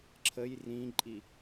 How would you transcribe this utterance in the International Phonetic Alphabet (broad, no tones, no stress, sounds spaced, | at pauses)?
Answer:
ǁʰ ə j r ĩ ǃʼ i